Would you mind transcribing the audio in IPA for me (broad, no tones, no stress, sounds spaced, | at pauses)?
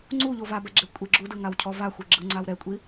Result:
ŋ͡ǀ u ʎ o v a b ɛ ɡ͡ǁ e kʷʼ e ɡ͡ǁ u d ɯ ŋ a w cʰ ɔ v a xʷ e ɡ͡ǁ ɯ ŋ͡ǀ a w ɾ ɛ kʷʼ i